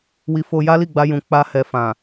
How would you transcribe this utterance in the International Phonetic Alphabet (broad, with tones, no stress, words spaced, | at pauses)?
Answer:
wi˧fo˧ ja˦li˦˨ɡ͡ba˧jũ˨ k͡pa˧ hɛ˧fã˨